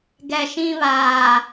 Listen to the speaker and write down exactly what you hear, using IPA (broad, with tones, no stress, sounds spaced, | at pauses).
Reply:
ɡ ɛ˨ ʃ ĩ˦ β aː˨